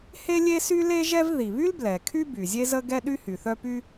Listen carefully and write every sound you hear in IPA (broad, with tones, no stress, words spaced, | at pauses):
he˥lʲe˥sy˥ le˥ʒɛ˥v ði˩βy˥lblɛ˩ kʰy˥ by˩zʲe˥zə˥ ɡɛ˥ɗy˥hy˩θœ˥ py˥